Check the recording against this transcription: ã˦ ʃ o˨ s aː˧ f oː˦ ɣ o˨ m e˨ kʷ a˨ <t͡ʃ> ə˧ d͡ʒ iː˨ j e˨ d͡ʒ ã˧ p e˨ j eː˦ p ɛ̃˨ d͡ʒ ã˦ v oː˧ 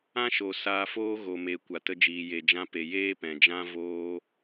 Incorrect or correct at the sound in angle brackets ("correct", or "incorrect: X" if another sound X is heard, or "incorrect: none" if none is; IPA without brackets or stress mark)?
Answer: incorrect: t